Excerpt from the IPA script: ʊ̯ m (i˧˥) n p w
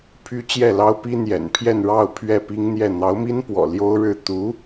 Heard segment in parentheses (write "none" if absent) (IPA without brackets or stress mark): i˥